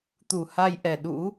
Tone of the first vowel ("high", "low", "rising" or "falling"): low